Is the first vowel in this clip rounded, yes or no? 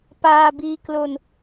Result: no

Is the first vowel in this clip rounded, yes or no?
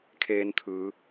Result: no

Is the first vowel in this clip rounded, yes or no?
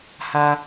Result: no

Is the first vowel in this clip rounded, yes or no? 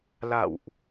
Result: no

